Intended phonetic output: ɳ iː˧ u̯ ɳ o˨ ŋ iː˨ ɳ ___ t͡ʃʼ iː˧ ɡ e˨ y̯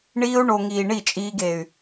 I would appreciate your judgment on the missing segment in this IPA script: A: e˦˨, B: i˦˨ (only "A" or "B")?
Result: B